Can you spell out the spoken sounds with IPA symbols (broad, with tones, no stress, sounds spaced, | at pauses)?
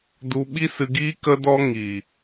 d u˧ ɓ i˦ s ɨ˧ ɡ iː˦ k ə˦ d ɔ˦ ŋ iː˨